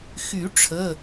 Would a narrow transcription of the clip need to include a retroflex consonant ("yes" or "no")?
yes